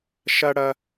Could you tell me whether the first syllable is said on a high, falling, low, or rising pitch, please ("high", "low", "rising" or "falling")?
high